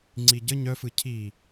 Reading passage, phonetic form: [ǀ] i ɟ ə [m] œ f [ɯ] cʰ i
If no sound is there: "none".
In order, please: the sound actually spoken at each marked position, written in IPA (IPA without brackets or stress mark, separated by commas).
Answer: ŋ͡ǀ, ɲ, ɯ